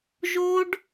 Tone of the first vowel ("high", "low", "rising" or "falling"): high